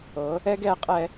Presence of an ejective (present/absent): present